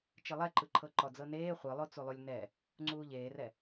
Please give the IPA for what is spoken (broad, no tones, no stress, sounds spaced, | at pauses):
t͡ʃ ɯ lˠ ɛ ǃ ɯ ǃʰ ɤ ǃ ɔ d͡z ɤ n eː χʷ ɯ lˠ o t͡s u lˠ u lʲ n ɛ | ŋ͡ǀ uː ʎ eː r ɛ